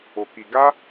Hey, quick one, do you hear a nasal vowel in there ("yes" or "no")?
no